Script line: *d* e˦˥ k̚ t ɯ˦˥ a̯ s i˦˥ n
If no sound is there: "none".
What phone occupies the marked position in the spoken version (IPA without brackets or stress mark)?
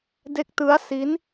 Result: d